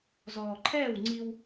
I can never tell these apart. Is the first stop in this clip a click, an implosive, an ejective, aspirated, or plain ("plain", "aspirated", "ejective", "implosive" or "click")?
click